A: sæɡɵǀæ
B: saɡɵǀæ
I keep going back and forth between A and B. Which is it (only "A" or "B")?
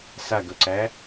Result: B